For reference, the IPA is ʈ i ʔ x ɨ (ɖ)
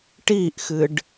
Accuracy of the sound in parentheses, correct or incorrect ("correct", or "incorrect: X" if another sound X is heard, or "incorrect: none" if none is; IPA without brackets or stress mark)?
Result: correct